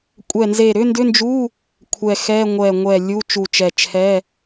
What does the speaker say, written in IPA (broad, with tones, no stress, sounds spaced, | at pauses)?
kʷʼ ɛ˧˩ n z e˧˩ ɾ ʏ˧˥˧ n d ʏ˧˥˧ n d͡ʒ u˧˥˧ | kʷʰ ɛ˧˩ x ɛ˧˥˧ ŋʷ ɛ˧˩ ŋʷ ɛ˧˩ lʲ u˧˥˧ t͡ʃ u˧˩ t͡ʃ ɛ˧˩ t͡ʃʰ ɛ˧˥˧